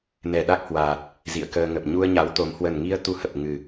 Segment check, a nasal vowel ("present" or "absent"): absent